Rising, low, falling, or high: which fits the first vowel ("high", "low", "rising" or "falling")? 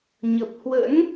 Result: low